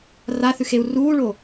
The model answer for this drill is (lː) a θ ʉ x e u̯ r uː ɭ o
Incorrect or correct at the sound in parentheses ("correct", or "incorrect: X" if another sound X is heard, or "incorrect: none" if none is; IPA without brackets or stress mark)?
incorrect: r